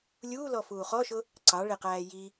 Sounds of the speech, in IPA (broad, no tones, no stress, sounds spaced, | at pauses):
lʲ uː l ɔ f uː χ ɔ ʃ ʊ | ǀ ɑ ɭ ɪ q æː j i